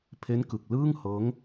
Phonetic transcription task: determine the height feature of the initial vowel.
mid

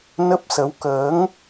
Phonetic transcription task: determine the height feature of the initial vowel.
mid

